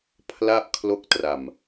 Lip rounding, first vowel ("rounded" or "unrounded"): unrounded